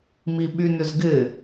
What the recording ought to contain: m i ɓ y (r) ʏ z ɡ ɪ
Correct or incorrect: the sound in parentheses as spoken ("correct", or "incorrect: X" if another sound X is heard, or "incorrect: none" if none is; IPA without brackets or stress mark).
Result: incorrect: n